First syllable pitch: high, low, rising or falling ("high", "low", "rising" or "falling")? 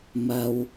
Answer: low